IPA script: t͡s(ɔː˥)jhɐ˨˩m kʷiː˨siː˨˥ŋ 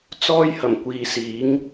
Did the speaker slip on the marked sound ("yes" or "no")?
no